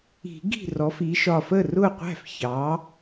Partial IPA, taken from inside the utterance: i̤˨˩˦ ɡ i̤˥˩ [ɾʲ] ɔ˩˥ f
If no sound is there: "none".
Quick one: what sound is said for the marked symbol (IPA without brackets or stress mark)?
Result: r